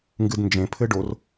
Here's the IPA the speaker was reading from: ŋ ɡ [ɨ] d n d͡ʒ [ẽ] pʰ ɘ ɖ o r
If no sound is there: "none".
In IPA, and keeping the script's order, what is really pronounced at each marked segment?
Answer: ɨ, ẽ

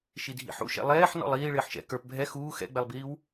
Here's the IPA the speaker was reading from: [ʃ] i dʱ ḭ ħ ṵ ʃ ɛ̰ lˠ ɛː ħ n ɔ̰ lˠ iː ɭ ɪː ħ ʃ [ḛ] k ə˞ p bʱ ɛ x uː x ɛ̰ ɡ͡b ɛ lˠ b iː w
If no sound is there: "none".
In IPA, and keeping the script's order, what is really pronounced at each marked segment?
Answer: ʃ, ɛ̰

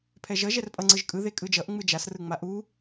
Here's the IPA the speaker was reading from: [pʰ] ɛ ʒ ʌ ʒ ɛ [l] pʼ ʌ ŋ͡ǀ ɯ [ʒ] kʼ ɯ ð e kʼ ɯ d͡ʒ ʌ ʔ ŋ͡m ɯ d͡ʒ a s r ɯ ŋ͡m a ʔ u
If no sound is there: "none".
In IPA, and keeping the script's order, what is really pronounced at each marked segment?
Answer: pʰ, r, ʒ

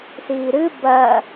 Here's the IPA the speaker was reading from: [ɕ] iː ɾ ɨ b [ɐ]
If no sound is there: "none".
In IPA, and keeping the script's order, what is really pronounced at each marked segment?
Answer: s, ɐː

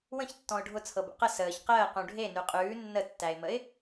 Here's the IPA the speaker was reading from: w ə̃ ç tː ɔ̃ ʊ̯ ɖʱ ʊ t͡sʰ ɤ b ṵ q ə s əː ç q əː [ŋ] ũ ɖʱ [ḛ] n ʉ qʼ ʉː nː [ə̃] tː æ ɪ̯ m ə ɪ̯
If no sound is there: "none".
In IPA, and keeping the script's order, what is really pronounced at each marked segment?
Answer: q, e, ə

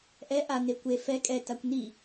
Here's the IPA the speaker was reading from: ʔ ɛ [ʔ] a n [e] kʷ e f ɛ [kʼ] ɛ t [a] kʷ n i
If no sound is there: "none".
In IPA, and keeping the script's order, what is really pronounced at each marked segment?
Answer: ʔ, e, kʼ, a

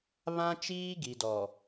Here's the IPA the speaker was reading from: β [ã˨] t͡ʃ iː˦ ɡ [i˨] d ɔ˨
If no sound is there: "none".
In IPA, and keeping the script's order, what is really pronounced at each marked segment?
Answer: ã˦, i˨

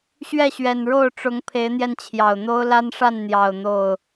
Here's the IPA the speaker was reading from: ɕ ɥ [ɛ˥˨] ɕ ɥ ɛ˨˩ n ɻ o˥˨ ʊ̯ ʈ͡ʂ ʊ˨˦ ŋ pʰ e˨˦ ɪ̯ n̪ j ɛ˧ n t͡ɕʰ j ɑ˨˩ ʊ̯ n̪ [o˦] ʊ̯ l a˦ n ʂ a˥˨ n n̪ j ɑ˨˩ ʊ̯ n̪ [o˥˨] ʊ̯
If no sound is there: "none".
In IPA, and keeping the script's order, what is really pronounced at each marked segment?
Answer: ɛ˥˨, o˦, o˥˨

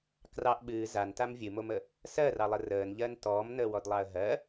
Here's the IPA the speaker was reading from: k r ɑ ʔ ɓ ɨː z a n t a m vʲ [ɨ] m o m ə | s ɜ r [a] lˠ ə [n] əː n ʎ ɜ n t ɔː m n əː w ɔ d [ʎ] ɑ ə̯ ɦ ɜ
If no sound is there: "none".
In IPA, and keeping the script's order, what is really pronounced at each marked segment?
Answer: ɨ, ɑ, r, lˠ

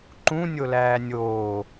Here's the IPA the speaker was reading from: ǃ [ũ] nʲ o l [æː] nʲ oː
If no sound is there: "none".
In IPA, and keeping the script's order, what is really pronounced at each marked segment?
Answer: ũ, æː

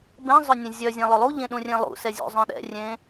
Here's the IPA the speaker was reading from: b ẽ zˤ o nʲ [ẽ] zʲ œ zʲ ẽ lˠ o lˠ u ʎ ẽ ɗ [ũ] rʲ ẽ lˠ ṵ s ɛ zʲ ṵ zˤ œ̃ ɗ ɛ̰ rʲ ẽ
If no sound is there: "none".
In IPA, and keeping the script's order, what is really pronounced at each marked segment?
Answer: ẽ, ũ

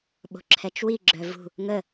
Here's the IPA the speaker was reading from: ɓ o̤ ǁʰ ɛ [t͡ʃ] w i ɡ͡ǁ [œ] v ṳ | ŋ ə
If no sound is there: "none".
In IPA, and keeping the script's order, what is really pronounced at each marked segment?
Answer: t͡ʃ, œ

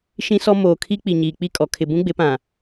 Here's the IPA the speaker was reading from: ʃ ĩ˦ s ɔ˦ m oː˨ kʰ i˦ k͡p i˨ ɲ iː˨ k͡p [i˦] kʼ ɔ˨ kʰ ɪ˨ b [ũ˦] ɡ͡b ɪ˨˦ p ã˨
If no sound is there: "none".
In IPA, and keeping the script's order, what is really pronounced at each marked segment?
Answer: i˦, ũ˦

